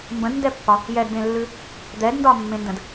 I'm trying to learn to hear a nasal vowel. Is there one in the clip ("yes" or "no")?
yes